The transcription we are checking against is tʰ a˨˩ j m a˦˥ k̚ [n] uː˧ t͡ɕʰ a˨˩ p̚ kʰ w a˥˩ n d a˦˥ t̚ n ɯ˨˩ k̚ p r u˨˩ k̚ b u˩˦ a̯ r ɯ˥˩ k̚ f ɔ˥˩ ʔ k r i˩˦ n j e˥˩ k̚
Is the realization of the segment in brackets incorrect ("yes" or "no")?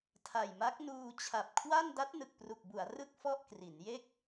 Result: no